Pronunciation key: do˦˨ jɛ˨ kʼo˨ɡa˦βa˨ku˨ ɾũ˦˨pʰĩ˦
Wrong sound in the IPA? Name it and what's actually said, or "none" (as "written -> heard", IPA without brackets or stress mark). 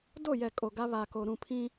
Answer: u˨ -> o˨